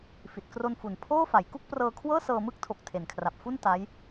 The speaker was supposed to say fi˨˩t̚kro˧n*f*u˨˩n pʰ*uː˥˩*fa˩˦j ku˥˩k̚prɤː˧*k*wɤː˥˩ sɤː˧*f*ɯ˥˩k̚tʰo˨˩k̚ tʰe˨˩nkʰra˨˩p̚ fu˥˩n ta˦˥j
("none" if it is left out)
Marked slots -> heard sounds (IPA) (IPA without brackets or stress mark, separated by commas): f, oː˥˩, kʰ, m